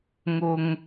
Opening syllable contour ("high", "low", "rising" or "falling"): low